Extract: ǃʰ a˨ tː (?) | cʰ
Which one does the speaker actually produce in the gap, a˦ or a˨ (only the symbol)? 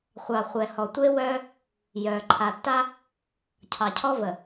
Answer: a˦